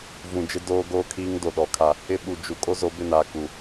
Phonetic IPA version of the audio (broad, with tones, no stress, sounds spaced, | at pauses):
v ũ˨ d͡ʒ ɪ˦ d oː˦ ɡ oː˦ kʰ iː˦ ŋ d o˨ ɗ ɔ˨ kʰ a˦ | ɪ˦ ɓ u˨ d͡ʒ u˨ kʼ o˦ z o˨˦ b ɪ˦˨ n aː˨ k u˨